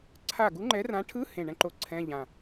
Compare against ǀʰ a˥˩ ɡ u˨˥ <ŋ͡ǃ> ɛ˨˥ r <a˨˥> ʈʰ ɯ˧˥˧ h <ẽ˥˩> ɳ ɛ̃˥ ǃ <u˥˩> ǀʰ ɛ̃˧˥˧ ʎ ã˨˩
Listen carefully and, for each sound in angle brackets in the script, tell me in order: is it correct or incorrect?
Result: correct, incorrect: ã˨˥, correct, incorrect: o˥˩

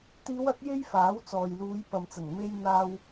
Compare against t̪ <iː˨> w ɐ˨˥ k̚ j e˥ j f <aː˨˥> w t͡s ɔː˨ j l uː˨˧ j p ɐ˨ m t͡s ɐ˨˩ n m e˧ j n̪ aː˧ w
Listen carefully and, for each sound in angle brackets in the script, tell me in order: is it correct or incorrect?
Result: incorrect: iː˨˧, correct

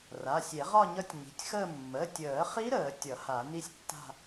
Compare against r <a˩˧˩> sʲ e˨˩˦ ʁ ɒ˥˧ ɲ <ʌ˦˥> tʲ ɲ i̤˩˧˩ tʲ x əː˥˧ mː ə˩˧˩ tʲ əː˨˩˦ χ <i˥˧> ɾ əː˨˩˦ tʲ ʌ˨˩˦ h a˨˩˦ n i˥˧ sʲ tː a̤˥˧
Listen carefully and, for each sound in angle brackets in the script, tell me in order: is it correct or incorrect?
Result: correct, correct, incorrect: i˦˥

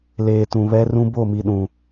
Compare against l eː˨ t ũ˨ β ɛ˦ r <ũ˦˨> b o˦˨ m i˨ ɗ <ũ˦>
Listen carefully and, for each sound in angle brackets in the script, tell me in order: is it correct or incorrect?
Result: incorrect: ũ˦, incorrect: ũ˨

